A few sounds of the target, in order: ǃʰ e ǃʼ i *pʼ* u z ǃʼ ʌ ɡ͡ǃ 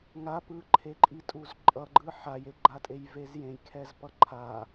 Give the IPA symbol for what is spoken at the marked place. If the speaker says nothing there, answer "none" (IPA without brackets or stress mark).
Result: tʼ